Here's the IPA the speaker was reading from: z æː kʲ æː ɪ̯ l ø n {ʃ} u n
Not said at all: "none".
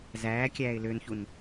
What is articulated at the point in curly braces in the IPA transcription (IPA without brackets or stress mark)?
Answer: ç